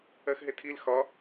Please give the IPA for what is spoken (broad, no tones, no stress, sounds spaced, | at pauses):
ɜ x ɦ ɪ tʰ i l x ɒ